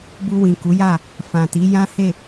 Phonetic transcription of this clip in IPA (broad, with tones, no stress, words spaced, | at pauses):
bu˧wĩ˨ ku˨˦ja˦˨ | fã˨ti˨˦ jã˦he˦˨